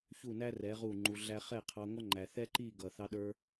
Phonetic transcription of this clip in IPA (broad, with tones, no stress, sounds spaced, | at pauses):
ç u˦˨ n æ˦ r ɛ˨˦ ʁ u˦˨ ŋ͡ǃ u˧ ɮ æ˦ χ ɛ˦˨ qʰ ɑ˧ ŋʷ ʌ˦ ŋ͡ǃ æ˨ θ ɛ˦ ǃ i˦˨ ɡ ʌ˨ θ ɑ˧ ɗ ə˞˧